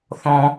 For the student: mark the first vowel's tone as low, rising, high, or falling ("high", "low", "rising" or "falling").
low